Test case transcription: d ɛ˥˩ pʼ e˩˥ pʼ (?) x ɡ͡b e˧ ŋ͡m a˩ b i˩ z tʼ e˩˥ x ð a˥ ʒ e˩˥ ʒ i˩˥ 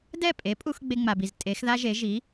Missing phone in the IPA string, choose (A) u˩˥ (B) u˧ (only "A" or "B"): B